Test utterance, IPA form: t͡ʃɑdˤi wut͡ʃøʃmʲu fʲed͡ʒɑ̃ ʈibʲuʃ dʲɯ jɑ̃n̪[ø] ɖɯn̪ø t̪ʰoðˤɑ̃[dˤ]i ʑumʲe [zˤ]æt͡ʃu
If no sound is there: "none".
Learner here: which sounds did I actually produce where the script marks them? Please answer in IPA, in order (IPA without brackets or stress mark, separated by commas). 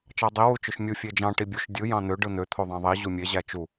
ø, ðˤ, ʑ